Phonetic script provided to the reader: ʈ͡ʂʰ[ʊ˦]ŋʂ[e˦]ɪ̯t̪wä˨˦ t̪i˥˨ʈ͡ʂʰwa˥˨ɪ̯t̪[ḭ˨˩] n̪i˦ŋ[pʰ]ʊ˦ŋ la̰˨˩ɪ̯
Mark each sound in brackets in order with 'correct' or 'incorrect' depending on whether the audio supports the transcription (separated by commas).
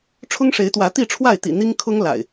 correct, incorrect, correct, incorrect